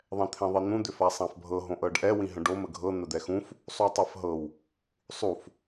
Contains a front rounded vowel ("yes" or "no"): yes